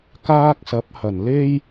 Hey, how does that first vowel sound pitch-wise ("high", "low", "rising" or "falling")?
high